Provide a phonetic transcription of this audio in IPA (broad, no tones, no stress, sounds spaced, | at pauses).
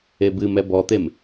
e b ɨ m ɛ b ɔ t̪ e m